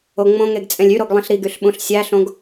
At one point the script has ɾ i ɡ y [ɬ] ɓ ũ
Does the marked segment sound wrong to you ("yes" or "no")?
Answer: no